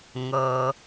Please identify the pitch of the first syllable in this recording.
low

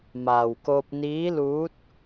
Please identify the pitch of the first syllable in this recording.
low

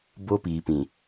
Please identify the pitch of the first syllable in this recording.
high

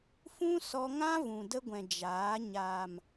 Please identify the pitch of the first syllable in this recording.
high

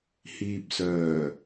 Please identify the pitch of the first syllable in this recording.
low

